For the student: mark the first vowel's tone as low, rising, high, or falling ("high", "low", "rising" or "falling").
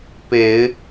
low